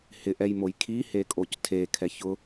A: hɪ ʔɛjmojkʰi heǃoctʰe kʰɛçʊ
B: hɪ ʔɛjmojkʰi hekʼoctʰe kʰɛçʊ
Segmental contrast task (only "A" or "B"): B